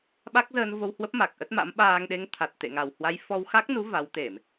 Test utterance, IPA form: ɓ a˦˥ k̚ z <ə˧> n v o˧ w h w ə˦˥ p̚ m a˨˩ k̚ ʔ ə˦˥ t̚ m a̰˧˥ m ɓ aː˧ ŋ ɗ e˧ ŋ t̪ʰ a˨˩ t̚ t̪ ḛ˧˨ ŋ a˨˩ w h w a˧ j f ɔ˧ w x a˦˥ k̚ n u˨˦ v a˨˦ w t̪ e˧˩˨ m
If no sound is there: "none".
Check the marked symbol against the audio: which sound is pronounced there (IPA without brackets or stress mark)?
əː˧